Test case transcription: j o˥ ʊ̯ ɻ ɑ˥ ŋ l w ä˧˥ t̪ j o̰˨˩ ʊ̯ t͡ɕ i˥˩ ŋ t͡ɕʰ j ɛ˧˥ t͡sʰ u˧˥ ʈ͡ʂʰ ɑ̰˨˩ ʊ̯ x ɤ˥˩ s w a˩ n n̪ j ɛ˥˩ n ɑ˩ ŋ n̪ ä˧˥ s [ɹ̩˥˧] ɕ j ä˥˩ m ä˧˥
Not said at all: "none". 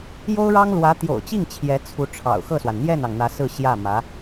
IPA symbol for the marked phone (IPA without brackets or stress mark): ɹ̩˥˧